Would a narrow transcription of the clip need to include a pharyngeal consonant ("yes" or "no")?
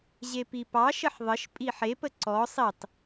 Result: yes